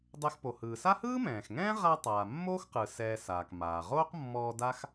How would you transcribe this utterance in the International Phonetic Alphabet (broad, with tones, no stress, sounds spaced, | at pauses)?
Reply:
dˤ ɛ˧ x p o˩ h ɯː˩ s a˥ h ɯː˥ m ɛ̃ː˩ x ŋ ɛ̃ː˥ ʁ a˧ tˤ aː˩ mː oː˥ x q ɯ˩ s ɛː˧ s aː˩ k m aː˩ ʁ oː˥ q mː ɔː˧ d a˥ x